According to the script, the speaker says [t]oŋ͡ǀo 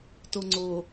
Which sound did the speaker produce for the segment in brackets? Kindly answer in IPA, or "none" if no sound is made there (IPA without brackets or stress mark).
t